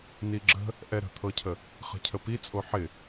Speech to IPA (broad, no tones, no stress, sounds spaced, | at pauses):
n i ɡ͡ǁ ə̤ | ʔ ɛ ɾ ə̤ t̪ʰ ɤ cʰ ə | χ ə̤ cʰ ə p i t͡sʼ o ħ ɪ